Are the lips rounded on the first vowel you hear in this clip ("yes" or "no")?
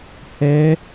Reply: no